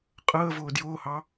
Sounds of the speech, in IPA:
qʼ əː v ʊː d j ʊː h ɑ

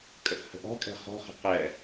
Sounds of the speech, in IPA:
kʼ ə x h ə̤ ʔ ɔ̤ kʼ ɛ̤ χ ɔ̤ χ ə̤ q ɛ

